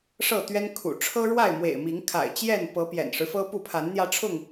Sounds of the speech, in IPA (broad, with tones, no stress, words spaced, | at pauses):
ʂɤ˥˨t̪ɥɛ˦nkʰṵ˨˩ ʈ͡ʂʰɤ˦ɻwa˥˨ɪ̯mwḛ˨˩ɪ̯mi˨˦ŋ kʰa̰˨˩ɪ̯t͡ɕjɛ˥˨npɤ˨˦ pjɛ̰˨˩nʂɻ̩˦fɤ˦pu˥˨ pʰa˨˦nn̪jä˧ʈ͡ʂʰʊ˥˨ŋ